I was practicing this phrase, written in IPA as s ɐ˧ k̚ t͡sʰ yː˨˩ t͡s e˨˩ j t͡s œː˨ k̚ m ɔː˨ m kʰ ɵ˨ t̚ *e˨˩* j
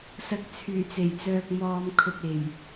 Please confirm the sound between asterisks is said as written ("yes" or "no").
yes